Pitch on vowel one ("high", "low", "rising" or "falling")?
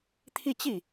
falling